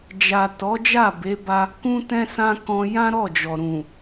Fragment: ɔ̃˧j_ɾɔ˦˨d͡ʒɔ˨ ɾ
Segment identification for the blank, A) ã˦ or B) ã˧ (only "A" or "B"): A